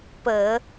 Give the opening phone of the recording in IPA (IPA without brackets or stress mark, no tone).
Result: p